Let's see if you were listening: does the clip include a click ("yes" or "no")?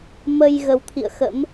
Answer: no